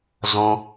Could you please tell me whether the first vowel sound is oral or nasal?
nasal